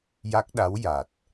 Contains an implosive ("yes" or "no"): yes